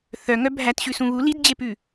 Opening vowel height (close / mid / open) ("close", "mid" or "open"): mid